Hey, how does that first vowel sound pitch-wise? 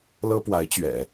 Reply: high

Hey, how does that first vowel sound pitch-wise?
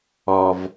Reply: low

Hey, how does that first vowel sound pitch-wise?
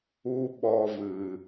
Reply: high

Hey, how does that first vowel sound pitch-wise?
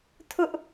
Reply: high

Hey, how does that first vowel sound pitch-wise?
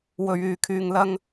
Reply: low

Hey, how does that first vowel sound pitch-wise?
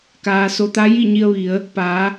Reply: low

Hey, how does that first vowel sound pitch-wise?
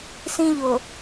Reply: high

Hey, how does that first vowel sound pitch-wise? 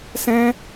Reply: high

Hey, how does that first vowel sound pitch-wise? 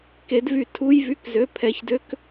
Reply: rising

